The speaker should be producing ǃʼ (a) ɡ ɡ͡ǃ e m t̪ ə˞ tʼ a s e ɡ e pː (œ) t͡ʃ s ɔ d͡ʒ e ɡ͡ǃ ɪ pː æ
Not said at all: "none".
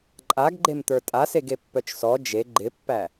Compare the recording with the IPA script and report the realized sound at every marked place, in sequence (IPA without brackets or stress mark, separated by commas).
a, œ